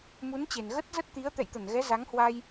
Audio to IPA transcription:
m u˨˦ n t͡ɕ e˨˩ n ɣ ə˦˥ t̚ z ə˦˥ t̚ t̪ i˨˦ ə̯ t̪ ɛ̰˧˨ j t̪ ə˧˩ n ɣ ɛ˨˦ z a˨˦ ŋ h w a˧ j

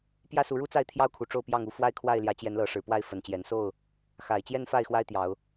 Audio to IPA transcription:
p j ä˦ s u˨˦ ɻ u˦ t͡s a˥˨ ɪ̯ t̪ʰ j ɑ˦ ʊ̯ kʰ u˨˩ ʈ͡ʂ o˥˨ ʊ̯ p j ɑ˥˨ ŋ u˦ f w a˦ ɪ̯ kʰ w a˥˨ ɪ̯ l j ä˨˦ t͡ɕ j ɛ˨˦ n l ɤ˨˦ ʂ ɻ̩˨˩ p w a˥˨ ɪ̯ f ə˨˩ n t͡ɕ j ɛ˨˦ n s o˥˨ ʊ̯ | x a˨˩ ɪ̯ t͡ɕ j ɛ˦ n f a˥˨ ɪ̯ x w a˦ ɪ̯ t̪ j ɑ˨˦ ʊ̯

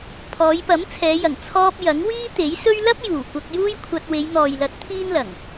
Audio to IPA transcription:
pʰ ɔː˨˧ j p ɐ˨˥ m t͡sʰ ɛː˨˧ j ɐ˨˩ ŋ t͡sʰ ɔː˧ p̚ j ɐ˨˥ ŋ w iː˥ t̪ e˨˥ j s ɵ˥ ɥ l ɐ˥ p̚ j uː˨˩ kʷ ɐ˧ k̚ j uː˥ j kʷʰ ɐ˧ t̚ w e˨˧ j n̪ ɔː˨ j l ɐ˨˥ t̚ t̪ʰ iː˥ n l ɐ˨˩ ŋ

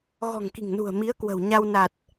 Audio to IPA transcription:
ɣ ɔ̤˨˩ ŋ k i̤˨˩ ŋ n ṳ˨˩ ə̯ m i˨˦ ə̯ k w ə̤˨˩ w ɲ a˧ w n a˨˩ t̚

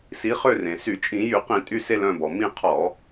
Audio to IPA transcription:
s i˨˦ χ ø˦˨ r ẽ˩ s y˧˩˧ t͡ʃʼ ĩ˧˩˧ j y˧˩˧ q ĩ˧˩˧ tʼ y˦˨ s e˦˨ l œ̃˦˨ b ɔ˩ m ĩ˦˨ qʰ ɔ˧˩˧

